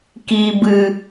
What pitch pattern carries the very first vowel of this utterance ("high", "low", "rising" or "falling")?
low